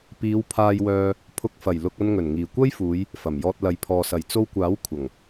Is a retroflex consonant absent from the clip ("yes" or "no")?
yes